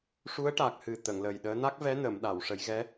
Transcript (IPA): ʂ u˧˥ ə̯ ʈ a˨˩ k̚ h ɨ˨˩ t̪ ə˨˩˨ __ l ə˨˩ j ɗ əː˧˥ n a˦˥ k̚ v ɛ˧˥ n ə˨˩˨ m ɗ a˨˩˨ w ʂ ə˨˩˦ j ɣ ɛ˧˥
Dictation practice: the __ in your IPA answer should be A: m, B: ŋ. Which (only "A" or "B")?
B